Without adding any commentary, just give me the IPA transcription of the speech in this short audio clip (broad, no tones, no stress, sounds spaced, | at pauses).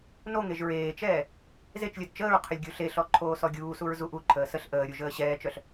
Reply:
n o ŋ e ʒ ɹ eː t͡ʃ ɛː | z e t͡ʃ lʲ œ d t͡ʃ əː ɹ qʰ ə lʲ ɡʲ u ɬ e ɬ ɔ ǃʰ oː s ɔ ɡʲ uː s u ɹ z u ʔ u ǃʰ əː s ə ɬ ʔ əː ɾʲ u ʒ əː ɕ ɛː t͡ʃ œ ɬ